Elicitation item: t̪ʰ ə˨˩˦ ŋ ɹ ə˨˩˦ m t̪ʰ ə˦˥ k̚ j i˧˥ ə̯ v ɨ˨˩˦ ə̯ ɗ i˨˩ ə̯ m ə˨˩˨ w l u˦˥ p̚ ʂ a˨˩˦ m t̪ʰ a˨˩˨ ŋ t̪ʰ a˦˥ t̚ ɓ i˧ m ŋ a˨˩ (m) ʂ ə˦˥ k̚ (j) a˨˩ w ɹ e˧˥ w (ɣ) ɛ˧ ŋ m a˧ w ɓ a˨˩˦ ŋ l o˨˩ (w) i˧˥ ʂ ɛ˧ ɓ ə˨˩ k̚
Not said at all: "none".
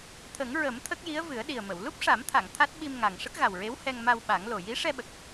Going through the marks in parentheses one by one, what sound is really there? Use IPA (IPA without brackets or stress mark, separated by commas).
ŋ, ɣ, h, j